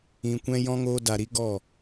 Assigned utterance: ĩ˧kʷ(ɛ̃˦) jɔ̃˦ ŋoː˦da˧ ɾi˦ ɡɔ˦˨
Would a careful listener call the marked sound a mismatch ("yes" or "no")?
no